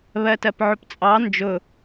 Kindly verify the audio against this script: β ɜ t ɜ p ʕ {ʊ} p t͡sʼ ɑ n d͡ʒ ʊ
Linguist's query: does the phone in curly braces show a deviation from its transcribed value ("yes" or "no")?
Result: no